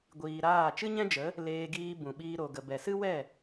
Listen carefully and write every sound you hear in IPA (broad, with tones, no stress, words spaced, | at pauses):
ɡʷiː˨ ɾaː˦˨ t͡ʃɨ˦ɲɛ̃˦d͡ʒə˨˦ | leː˧ɡiː˧ bũ˨ɓiː˧ ɾo˨ɡə˨ bɛ˨sɨ˦wɛ˦˨